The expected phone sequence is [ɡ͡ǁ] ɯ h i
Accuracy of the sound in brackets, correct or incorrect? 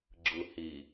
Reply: correct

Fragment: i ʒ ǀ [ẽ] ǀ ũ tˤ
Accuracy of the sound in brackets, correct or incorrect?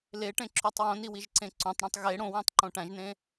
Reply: correct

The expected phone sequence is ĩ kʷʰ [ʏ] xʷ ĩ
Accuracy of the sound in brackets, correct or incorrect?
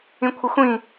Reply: incorrect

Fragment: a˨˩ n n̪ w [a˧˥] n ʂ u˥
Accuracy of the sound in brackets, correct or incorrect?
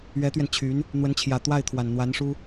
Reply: correct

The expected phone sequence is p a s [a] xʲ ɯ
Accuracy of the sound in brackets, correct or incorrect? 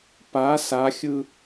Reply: correct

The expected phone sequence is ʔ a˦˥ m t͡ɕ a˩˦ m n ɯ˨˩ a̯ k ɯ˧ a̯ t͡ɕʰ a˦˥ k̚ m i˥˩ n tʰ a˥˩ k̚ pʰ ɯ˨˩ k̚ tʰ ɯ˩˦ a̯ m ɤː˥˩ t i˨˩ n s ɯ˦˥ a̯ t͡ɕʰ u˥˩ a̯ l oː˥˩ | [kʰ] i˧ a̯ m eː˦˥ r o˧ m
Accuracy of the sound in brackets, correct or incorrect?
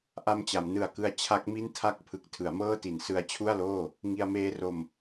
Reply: incorrect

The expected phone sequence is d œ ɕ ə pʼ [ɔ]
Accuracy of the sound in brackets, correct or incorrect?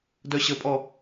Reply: correct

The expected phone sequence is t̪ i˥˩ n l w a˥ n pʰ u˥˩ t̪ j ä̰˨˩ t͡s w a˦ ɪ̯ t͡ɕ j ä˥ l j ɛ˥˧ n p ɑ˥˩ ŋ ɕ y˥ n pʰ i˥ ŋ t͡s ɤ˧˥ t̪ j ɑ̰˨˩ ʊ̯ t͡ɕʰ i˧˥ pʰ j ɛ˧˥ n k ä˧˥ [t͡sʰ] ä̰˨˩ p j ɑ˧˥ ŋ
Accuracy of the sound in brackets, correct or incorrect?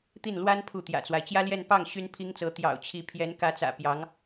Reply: incorrect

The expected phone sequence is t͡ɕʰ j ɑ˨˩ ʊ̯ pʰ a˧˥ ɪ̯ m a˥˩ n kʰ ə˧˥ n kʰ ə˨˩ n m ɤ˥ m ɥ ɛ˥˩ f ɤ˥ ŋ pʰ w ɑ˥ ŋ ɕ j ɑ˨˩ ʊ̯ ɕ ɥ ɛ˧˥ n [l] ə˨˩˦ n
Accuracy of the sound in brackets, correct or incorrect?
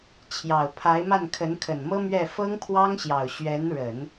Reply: incorrect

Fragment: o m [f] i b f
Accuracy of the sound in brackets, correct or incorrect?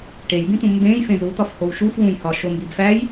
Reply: incorrect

